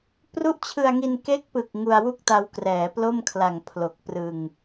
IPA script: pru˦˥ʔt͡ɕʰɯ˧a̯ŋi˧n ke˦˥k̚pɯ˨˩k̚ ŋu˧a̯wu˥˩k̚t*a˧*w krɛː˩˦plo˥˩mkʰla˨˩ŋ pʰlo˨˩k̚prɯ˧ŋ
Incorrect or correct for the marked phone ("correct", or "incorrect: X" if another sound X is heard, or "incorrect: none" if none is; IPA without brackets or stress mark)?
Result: correct